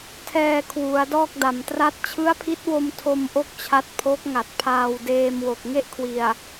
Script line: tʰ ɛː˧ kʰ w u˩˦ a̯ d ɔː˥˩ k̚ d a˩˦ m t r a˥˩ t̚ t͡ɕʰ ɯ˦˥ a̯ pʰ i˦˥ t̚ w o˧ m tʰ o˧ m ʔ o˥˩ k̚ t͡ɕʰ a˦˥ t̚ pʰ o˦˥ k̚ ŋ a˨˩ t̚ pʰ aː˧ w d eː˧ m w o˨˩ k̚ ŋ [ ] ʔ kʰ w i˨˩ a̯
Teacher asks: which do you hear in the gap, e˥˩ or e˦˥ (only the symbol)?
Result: e˥˩